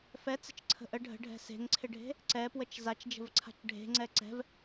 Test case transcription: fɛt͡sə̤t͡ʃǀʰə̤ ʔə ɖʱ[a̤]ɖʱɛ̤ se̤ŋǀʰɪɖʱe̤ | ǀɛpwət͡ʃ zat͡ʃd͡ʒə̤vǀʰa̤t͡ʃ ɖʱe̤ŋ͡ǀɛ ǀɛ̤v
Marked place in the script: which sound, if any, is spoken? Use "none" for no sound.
ə̤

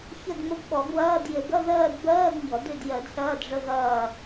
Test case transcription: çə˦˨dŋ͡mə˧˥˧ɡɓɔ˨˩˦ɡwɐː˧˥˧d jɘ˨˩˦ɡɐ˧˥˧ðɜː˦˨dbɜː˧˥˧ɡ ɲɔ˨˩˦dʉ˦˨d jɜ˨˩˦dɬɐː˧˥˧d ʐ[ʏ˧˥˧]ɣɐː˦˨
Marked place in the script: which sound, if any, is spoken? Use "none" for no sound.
ə˧˥˧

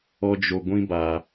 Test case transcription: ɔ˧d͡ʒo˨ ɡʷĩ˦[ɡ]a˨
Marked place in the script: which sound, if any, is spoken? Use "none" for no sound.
b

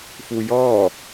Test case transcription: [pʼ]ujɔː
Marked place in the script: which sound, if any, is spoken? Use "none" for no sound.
f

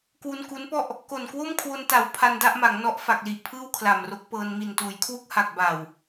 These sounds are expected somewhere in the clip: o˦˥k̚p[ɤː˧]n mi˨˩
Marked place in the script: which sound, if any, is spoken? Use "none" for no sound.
ɤː˧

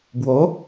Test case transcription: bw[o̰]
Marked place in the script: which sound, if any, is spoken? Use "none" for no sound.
o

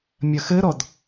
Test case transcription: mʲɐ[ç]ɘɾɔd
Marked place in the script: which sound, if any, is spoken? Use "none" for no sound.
x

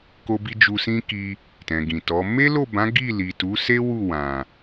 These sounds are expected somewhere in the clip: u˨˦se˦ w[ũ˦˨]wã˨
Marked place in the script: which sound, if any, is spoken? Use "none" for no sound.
u˦˨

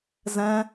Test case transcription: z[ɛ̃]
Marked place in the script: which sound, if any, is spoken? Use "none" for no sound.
ɛ̃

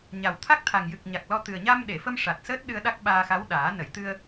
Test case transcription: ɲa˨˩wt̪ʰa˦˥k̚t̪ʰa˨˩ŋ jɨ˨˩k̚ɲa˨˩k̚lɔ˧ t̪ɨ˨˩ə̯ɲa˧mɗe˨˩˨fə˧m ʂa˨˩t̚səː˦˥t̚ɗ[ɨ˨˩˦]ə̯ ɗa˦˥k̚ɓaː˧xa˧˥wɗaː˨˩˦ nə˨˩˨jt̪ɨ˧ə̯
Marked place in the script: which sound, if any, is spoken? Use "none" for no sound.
ɨ˧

